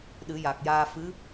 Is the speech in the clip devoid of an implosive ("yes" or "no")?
no